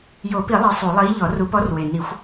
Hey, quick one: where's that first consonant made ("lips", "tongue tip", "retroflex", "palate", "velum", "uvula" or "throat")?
palate